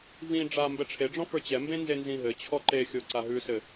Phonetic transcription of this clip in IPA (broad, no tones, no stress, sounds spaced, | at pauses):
v ĩ ɖ͡ʐ a m b ɛ ʈ͡ʂʰ e ɖ͡ʐ ɔ̃ f ə˞ t͡ɕ ɛ m b ẽ n z e n z ĩ ɦ ɘ t͡ɕʰ ɔ ǃ e xʲ o ǀ a ɦ ʉ s ɘ